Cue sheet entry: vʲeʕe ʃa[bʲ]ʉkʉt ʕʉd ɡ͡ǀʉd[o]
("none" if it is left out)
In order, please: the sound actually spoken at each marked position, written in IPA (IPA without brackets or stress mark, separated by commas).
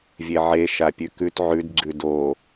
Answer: pʲ, o